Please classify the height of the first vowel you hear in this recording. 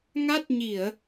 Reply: low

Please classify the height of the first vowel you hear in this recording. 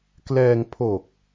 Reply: mid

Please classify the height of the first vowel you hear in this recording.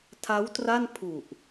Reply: low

